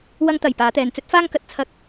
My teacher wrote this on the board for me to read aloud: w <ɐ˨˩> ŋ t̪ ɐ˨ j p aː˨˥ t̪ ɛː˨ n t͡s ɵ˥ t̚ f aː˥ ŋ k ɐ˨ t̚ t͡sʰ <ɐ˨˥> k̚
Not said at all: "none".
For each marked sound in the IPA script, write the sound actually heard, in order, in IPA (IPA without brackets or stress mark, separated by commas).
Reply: ɐ˥, ɐ˥